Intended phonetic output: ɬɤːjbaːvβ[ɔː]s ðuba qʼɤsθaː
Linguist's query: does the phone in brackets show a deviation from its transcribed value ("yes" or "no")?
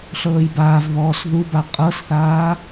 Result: no